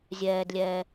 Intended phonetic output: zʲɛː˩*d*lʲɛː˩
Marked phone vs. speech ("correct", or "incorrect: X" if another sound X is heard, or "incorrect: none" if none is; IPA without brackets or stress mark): correct